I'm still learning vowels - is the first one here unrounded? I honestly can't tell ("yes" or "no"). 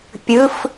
yes